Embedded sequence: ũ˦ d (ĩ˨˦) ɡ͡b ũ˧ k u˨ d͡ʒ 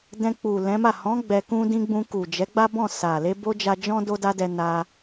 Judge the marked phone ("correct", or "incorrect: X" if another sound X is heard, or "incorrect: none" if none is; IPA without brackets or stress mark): incorrect: ĩ˦